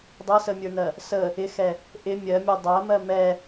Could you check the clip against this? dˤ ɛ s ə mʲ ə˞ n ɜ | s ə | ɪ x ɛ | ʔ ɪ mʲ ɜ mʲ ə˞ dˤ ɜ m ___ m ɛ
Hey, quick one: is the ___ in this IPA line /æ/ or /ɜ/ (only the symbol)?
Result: ɜ